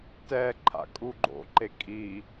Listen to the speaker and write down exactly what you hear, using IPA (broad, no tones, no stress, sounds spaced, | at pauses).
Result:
t ɛ ǃʰ a̰ kʼ u ɡ͡ǃ o̰ ǃ e kʼ i